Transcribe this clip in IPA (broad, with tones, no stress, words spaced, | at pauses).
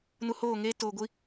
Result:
nu˨ hoː˦˨ŋeː˦ toː˨ɡʷi˦